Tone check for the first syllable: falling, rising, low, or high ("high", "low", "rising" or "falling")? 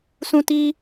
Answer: high